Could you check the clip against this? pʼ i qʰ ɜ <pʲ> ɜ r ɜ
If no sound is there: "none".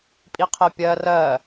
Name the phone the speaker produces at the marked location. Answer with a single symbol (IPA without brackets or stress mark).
pʲ